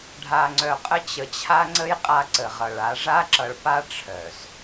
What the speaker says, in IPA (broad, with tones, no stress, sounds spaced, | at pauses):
ɖʱ a˨ ŋ͡ǀ œ˨ qʼ ə˦ t͡ɕ ə˨ t͡ɕʰ a˦ ŋ͡ǀ ə˦ j qʼ a˦ ǀ ə˨ ʁ ʌ˨ ɭ a˨˦ ʐ a˦ ǁ ʌ˨ ɭ p a˦ ʈ͡ʂʰ œ˨ s